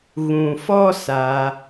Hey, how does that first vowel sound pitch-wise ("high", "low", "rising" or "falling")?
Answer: low